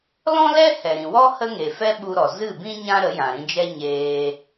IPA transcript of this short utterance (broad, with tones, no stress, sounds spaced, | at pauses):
l ɔ̃˦ l ɛ˦ h ɛ˨ ɾ ĩ˨ w ɔ˦ h ə˦ ŋ e˨ f ɛ˦ ɓ u˧ ɾ ɔ˨ z ɨ˦˨ b ĩ˦ ɲ ã˦ ɾ ə˨˦ j ã˨ ɾ ĩ˧ d͡ʒ ɛ˦ ɲ eː˧